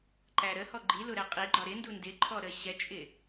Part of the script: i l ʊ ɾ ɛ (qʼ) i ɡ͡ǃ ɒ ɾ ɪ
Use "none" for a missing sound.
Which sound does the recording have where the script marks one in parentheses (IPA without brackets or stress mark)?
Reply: qʼ